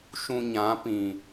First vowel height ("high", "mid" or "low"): high